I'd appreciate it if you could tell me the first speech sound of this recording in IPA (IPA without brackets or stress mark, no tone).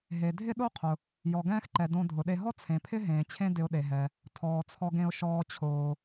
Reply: ɦ